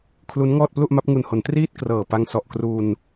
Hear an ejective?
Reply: no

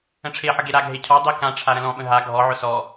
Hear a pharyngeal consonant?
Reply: yes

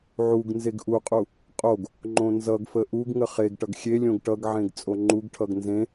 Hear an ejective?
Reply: yes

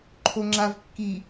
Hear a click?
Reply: yes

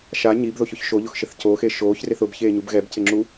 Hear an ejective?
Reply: no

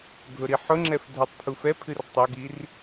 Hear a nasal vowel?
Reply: no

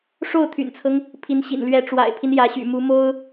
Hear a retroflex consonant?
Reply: yes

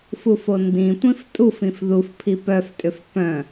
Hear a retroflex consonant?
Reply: no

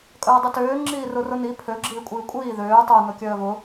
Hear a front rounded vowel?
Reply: yes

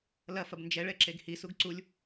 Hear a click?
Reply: yes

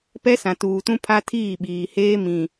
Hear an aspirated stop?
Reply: yes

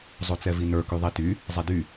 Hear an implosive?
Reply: no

